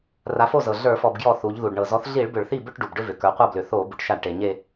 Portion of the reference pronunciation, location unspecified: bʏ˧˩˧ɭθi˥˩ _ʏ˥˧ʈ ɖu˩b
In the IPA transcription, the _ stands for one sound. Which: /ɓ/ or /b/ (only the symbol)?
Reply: b